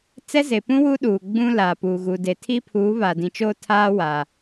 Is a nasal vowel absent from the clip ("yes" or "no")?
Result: no